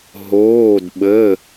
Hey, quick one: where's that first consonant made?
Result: throat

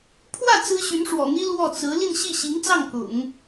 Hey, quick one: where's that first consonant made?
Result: lips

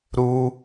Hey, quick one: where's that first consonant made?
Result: tongue tip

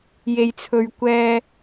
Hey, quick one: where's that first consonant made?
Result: palate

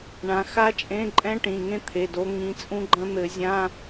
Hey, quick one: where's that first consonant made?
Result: retroflex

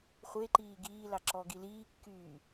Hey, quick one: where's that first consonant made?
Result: uvula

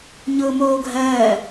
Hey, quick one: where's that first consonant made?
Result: palate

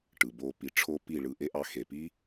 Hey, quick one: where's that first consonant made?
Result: retroflex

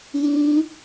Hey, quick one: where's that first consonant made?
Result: palate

